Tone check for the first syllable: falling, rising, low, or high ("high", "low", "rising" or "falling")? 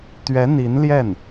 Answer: rising